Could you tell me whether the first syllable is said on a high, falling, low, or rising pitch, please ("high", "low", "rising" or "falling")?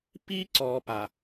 high